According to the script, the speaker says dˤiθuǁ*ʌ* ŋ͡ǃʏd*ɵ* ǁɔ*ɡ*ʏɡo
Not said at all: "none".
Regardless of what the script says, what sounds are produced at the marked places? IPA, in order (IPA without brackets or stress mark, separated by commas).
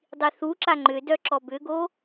a, œ, b